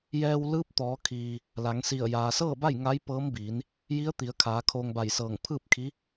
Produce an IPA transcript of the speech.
j ɛː˧ w l ɯː˧˥ p̚ t̪ ɔː˩˧ kʰ iː˩ | l a˩˧ ŋ s i˧˩ ə̯ j aː˩ s ɤː˥˨ b a˥˨ j ŋ a˧˥ j p ɤː˧˥ m b iː˩˧ n | j i˧˥ ə̯ t̪ i˩˧ ə̯ kʰ aː˩˧ kʰ oː˧ ŋ b a˧˩ j s ɤː˧˩ ŋ pʰ ɯː˥˨ p̚ kʰ i˧˥

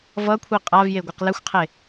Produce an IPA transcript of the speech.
v ʌ kʷʰ i qʼ a v j e ɡʷ e q l ɛ xʷ qʰ e

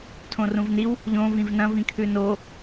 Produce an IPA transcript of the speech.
tʰ õ r ũ v n i w | ʎ õ v ĩ v n ɐ̃ v ĩ kʰ ʉ n o

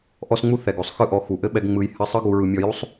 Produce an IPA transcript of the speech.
ʔ ɔ˧ s ŋ͡m u˧ θ ɛ˨ ɡ o˨ sˤ x ɯ˦˨ ʔ ɔ˨˦ x u˨ ʔ ɘ˦ ɓ ɛ˧ ɡ ŋ͡m ɯ˧ j h ɘ˧ sˤ ɯ˦ ɡ u˧ ɹ ɯ˧ mʲ ɔ˧ j u˦ sˤ

